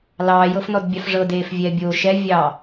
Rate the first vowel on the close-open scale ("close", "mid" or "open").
open